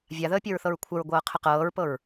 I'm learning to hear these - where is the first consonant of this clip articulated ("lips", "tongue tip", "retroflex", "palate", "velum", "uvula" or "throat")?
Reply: lips